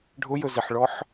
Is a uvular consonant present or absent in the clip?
absent